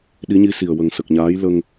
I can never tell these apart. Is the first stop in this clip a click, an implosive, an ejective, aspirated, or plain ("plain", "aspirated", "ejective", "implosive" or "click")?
implosive